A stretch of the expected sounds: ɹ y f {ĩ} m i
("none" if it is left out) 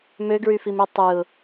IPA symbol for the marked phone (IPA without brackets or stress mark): i